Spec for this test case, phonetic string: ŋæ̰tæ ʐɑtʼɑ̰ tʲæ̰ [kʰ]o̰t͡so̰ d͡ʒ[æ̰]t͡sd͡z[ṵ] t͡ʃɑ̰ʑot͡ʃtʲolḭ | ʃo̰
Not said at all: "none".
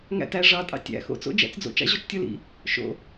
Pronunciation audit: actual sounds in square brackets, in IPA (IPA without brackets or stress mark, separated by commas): x, æ̰, o̰